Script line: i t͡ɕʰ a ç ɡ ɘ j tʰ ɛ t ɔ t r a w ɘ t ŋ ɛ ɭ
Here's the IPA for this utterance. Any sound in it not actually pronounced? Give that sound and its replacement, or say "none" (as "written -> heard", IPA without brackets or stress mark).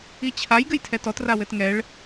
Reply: ç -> j